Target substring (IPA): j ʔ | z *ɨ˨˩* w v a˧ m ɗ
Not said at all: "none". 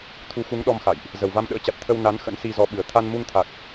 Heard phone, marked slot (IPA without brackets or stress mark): ə˨˩